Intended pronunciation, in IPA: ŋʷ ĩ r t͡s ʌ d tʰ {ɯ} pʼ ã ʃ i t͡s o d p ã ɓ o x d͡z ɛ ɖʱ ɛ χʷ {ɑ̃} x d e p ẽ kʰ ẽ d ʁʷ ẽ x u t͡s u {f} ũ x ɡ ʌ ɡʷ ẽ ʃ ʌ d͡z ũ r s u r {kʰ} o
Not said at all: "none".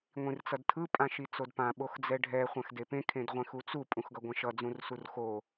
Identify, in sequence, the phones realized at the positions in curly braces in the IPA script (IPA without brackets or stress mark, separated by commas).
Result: ɯ, ã, pʼ, x